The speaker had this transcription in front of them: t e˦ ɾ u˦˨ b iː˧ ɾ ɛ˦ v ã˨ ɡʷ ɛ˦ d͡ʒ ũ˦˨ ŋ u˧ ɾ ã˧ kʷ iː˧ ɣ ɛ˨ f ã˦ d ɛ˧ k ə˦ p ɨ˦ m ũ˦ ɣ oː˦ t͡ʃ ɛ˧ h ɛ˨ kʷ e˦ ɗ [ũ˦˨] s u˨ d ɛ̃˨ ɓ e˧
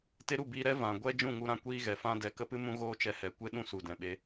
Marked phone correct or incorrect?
correct